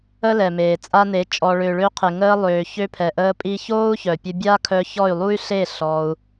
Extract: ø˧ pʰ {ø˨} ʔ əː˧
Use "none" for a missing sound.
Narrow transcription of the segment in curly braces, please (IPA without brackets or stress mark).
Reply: ɛ˨